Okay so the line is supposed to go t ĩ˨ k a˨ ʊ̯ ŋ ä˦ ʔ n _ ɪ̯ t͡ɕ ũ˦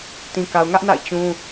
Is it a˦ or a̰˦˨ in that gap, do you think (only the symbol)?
a̰˦˨